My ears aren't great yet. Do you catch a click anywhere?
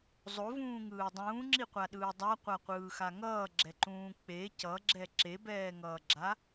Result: yes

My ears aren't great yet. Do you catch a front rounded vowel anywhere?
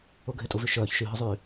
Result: yes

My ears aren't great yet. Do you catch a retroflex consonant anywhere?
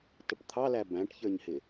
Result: yes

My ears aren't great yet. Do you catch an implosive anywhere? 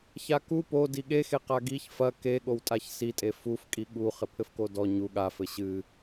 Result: yes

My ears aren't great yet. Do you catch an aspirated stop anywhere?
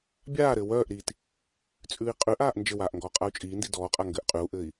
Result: no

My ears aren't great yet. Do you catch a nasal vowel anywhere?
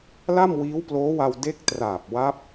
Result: no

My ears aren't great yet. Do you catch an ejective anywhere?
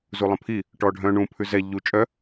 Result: yes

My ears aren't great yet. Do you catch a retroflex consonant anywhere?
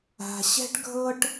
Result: yes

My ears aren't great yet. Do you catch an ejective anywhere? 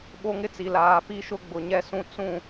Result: no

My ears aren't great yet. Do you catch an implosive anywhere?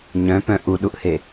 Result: yes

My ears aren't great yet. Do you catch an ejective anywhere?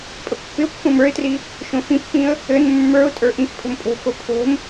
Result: yes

